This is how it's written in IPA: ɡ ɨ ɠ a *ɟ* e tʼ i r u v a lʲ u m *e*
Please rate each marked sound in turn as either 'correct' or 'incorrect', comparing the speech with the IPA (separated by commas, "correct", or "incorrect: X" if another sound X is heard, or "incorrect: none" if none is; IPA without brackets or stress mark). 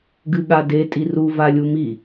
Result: incorrect: d, incorrect: i